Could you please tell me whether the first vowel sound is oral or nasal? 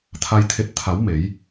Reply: oral